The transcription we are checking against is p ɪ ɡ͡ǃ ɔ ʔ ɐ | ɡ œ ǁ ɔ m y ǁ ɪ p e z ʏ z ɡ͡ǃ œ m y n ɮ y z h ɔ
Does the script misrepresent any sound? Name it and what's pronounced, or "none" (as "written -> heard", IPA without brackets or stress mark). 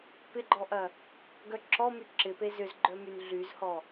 none